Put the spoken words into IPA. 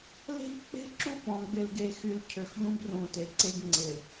l e̤˦ ʎ k͡p e̤˦ ǁ u˦˨ p ɔ̃˨ ɡ͡b ɪ˨ l ɡ e˨ x y˨ l cʰ ø˨ x ʎ ũ˦ b r ũ˨ t e˨ ǀ e˦ ɡ ŋ͡ǀ ɪ˨

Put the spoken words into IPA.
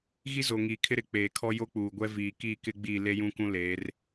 ɣ i˦ z o˨ ŋ iː˨ kʰ ɪ˦ ɾ ɪ˨˦ k͡p eː˨ kʰ ɔ˦ j o˦ k͡p uː˨ ɡʷ ɛ˦ v iː˨ k iː˦˨ k ɪ˦ ɡ͡b iː˦˨ l e˦ j ũ˦ k ũ˦ l eː˨˦ r

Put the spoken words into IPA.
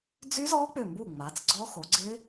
d͡z y˦˥ z ɔ˦˥ k͡p ʏ˧˩ m b u˧˩ ŋ͡m a˩˧ t͡s ɡ͡ǀ ɔ˦˥ x o˩˧ ɡ͡ǀ ɪ˦˥

